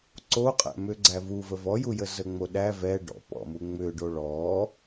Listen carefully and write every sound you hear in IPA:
ǀ o qʼ æ̰ m ʏ ɡ͡ǀ æ v u v ə v ɔ j u j ə z ə ŋ͡m o ɗ æ v ɛ ɖ ɔ̰ p ɔ̰ m u ŋ͡m ʏ ɖ o ɭ ɔ

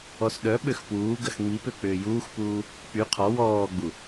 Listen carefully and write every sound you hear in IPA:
ɔ s ɗ œ ɓ ø x p uː ɡ ɐ x ŋ͡m i p ø k͡p ʏː j uː x p uː | k͡p y qʰ ɔ w ɔː ɡ͡b u

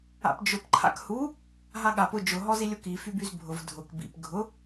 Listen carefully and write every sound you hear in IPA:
a̰ p d͡ʒ ʊ p ǃʰ a̰ k h u | ɦ a ɠ a p ʊ d͡ʒ ʊ ɦ ɔ z i lʲ ʊ k i f y b y z bʱ ʊ v dʱ ʊ k b ḭ p ɡʱ ʊ

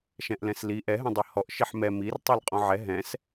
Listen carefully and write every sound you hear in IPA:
ʃ ɛ̃ ʔ l ɛ̃ s l i ʔ ɛ ɦ ɛ̃ dˤ ɨ h ɔ ʔ ʃ i ħ m ɛ m i r tˤ ɛ l qʼ ɔ̃ ʕ ɛ ɦ ɛ̃ s

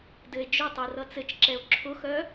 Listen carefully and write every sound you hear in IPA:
d ɘ e̯ d͡ʒ ʊ tˤ u r ʌ t͡s ɘ t͡ʃ ǁ ɛ o̯ ǁʰ ʊ x œ

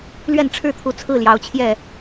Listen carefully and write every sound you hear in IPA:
l ɥ ɛ˥˨ n ʈ͡ʂʰ ɻ̩˥˨ t̪ʰ u˨˦ t͡sʰ ɹ̩˥˨ l j ɑ˨˦ ʊ̯ t͡ɕʰ j ɛ˥˨

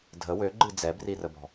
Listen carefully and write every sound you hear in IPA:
dʱ ə w ø ɡ͡ǃ ɨ d͡z ɛ b r i r ə b ɔ̤

